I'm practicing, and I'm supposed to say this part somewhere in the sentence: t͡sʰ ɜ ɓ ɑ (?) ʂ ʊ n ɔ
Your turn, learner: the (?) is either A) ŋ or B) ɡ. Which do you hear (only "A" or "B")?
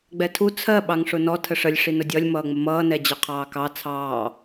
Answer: A